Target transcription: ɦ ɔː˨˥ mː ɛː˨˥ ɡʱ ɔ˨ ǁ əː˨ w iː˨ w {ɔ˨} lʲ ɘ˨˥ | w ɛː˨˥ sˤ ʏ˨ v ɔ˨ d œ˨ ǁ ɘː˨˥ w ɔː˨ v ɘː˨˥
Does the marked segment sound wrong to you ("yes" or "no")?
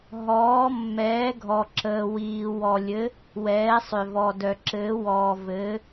no